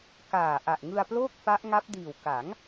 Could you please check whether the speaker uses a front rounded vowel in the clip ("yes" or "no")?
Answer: no